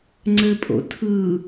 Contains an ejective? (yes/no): yes